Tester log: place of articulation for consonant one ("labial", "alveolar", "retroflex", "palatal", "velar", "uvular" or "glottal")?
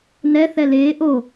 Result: alveolar